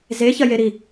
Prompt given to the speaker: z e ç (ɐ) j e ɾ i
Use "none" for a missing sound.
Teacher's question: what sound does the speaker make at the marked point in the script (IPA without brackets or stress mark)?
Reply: ɐ